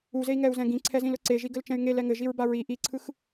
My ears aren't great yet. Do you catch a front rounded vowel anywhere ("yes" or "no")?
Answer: yes